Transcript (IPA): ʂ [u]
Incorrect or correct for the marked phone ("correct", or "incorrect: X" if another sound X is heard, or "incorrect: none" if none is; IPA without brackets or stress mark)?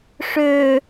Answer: incorrect: ø